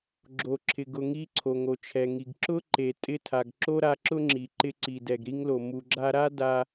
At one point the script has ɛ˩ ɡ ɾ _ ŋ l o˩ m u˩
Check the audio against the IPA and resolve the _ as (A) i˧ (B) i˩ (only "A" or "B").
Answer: A